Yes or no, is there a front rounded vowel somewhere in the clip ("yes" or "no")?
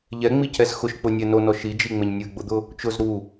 no